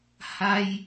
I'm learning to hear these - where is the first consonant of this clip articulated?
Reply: throat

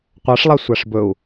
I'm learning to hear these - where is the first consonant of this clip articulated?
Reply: uvula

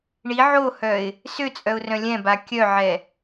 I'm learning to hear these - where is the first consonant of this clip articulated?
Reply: retroflex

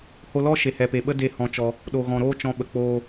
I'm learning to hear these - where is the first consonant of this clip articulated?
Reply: throat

